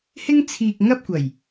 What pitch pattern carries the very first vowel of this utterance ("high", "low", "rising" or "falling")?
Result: high